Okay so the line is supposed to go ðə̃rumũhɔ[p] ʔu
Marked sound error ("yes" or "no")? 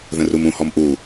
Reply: yes